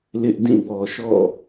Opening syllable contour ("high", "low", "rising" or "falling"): high